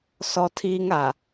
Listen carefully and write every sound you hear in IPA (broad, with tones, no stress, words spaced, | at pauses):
sɔ˦tʰiː˦ŋa˨